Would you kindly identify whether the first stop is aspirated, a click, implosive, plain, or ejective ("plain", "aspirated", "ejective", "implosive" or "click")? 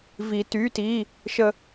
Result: plain